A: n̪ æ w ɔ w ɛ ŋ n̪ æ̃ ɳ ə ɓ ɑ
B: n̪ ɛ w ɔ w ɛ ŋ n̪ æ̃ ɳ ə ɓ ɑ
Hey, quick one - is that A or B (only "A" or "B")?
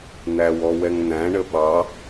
A